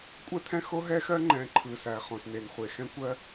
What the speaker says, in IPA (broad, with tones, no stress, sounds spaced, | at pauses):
kʷʼ ɛ˦ t̪ʰ ɛ̃˦ x o˦ ɦ ɛ˦ x ɜ˦ ŋ͡ǃ ɛ̃˨ ǃʰ ɯ˨ s æ˨ χ õ˨ s n e˨ n χʷ e˨ x ɛ̃˦ kʷ ɜ˦